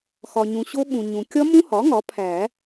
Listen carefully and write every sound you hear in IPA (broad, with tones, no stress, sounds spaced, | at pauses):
x ɒ˨ ɲ ũ˨ ɕ o˦˥ ɓ ũ˨ ɲ ũ˨ kʲ ɒ˦˥ m ũ˦˥ h ɒ˩˥ ŋ ɒ˩˥ pʰ æ˨˩˦